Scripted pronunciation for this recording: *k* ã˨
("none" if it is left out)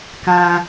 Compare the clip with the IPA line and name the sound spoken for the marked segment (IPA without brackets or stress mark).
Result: k